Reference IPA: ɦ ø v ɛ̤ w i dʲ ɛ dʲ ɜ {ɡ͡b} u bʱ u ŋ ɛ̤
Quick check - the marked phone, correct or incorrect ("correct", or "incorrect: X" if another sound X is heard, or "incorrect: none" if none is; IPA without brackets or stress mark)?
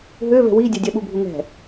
incorrect: ɓ